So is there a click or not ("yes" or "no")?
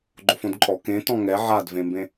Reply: yes